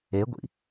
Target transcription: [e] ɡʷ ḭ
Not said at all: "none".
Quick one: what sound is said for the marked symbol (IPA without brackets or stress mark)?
e